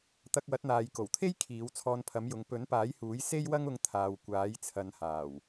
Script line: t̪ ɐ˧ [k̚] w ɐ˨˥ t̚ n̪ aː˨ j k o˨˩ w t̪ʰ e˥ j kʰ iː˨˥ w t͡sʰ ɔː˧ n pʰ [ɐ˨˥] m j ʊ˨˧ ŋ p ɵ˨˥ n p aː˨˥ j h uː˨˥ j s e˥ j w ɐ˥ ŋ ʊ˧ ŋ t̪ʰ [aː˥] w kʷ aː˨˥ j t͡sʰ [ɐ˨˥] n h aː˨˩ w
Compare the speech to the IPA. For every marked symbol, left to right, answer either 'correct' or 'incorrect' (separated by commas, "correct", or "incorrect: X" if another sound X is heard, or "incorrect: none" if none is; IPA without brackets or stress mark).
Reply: correct, correct, incorrect: aː˨, incorrect: ɐ˨˧